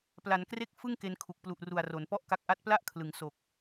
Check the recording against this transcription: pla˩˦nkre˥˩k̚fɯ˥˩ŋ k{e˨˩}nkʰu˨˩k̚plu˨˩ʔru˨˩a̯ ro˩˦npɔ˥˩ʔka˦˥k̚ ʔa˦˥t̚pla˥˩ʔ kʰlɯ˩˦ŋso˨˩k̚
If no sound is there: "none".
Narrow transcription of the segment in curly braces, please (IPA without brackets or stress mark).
e˧